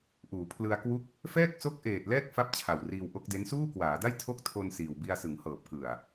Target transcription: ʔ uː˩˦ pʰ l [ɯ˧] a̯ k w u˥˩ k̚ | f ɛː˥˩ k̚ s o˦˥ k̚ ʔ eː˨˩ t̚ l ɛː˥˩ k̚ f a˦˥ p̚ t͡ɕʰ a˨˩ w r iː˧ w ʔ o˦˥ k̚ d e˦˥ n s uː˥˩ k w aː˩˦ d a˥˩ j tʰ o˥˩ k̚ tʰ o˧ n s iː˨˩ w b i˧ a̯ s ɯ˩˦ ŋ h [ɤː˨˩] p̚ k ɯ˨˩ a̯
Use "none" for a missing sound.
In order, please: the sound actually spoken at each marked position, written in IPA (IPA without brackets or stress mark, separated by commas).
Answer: ɯ˧, ɤː˨˩